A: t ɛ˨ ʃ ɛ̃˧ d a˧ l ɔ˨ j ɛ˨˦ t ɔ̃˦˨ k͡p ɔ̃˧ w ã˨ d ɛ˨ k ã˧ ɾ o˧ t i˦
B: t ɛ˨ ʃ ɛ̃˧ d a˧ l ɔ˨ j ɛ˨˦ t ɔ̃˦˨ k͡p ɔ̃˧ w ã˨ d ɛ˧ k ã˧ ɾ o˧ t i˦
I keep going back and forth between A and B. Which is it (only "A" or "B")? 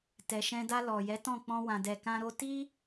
A